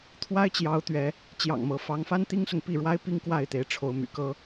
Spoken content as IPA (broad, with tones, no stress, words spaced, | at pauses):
t̪ʰwa˦ɪ̯t͡ɕjɑ˨˦ʊ̯ t̪ɥɛ˨˦ | t͡ɕjɑ̰˨˩ŋmɤ˨˦fɑ˨˦ŋfa˦n t̪i˦ŋsʊ˨ŋpi˥˨ɻwa˦ɪ̯ pi˦ŋkwa˥˨ɪ̯t̪e˨˦ɪ̯ ʈ͡ʂʰo˨˦ʊ̯my̰˨˩kɤ˦